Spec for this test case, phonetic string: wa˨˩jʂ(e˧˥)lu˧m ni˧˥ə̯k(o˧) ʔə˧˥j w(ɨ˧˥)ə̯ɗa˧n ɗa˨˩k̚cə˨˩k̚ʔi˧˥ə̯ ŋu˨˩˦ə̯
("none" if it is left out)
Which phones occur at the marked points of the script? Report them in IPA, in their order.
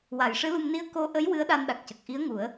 ɨ˧˥, o˧, ɨ˧˥

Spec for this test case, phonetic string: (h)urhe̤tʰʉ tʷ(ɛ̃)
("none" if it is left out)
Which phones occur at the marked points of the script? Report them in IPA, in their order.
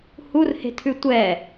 h, ɛ

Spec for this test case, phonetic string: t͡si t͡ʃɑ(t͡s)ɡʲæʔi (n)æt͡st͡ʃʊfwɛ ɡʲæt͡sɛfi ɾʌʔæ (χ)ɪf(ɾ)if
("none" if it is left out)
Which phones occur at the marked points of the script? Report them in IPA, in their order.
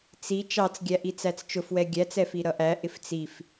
t͡s, t͡s, ʔ, t͡s

